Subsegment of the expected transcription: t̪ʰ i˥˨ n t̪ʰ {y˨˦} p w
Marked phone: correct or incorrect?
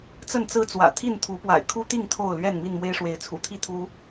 incorrect